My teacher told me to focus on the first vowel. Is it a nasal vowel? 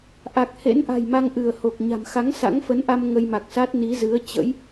no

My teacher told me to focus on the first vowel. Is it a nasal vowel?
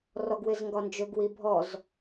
no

